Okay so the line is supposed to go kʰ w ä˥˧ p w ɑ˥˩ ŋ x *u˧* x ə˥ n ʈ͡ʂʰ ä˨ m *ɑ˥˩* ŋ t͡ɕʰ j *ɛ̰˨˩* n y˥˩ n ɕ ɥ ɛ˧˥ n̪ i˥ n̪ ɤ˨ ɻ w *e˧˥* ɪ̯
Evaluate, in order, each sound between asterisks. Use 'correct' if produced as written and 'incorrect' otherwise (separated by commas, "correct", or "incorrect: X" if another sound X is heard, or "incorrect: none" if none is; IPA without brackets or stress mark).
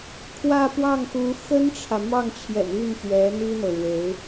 incorrect: u˧˥, correct, correct, correct